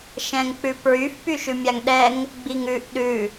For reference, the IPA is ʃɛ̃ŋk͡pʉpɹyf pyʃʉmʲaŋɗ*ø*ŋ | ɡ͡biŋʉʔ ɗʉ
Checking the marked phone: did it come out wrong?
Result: yes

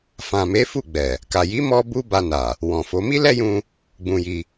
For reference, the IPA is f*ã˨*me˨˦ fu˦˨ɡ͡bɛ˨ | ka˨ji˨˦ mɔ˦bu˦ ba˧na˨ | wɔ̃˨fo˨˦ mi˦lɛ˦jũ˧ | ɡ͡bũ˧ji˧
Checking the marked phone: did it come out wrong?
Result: no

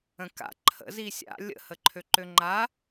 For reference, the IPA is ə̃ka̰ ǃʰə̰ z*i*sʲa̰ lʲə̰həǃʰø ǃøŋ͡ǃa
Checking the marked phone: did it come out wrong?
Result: no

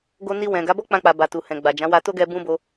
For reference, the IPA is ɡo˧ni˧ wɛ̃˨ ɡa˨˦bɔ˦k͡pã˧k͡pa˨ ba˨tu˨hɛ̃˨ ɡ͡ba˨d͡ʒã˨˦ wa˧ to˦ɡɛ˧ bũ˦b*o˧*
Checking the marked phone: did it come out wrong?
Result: no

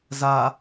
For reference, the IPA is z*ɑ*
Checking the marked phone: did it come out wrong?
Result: yes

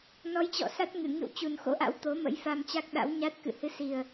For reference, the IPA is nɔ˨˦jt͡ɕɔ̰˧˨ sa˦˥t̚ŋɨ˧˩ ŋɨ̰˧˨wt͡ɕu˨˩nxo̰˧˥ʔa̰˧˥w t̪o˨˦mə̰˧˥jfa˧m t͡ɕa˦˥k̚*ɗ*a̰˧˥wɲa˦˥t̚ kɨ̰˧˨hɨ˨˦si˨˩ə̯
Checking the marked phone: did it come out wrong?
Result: no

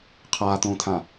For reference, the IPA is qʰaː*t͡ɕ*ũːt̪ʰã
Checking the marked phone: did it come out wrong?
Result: yes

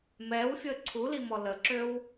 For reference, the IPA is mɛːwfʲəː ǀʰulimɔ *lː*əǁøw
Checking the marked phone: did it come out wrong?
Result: yes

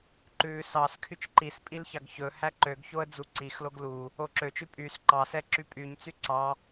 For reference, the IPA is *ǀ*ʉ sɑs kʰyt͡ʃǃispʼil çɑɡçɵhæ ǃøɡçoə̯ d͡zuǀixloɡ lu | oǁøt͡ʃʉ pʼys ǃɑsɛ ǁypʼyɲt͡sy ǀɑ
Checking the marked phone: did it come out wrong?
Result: yes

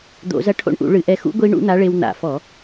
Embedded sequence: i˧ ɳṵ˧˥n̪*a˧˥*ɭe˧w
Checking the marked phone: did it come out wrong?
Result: no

